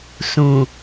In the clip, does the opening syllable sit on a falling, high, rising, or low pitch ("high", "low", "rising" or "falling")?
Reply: low